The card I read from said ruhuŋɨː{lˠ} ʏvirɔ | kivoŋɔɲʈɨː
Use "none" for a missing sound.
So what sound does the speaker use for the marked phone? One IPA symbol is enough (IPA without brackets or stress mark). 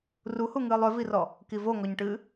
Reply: lˠ